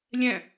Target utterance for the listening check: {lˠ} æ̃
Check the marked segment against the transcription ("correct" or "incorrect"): incorrect